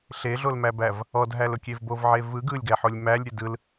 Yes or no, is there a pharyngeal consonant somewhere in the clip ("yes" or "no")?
yes